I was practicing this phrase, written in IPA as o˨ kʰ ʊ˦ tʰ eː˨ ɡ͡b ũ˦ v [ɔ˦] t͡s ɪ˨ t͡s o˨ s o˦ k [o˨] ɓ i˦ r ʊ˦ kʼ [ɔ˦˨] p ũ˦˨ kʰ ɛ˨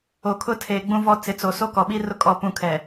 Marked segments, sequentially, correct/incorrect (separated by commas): correct, incorrect, correct